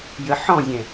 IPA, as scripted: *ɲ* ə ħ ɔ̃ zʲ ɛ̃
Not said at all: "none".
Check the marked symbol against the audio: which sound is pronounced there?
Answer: j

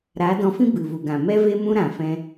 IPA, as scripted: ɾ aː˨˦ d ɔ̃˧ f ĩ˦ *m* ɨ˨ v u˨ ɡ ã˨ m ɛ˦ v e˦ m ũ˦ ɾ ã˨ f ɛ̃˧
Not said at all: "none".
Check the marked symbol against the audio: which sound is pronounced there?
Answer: b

